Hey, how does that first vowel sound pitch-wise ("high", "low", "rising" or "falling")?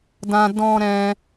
high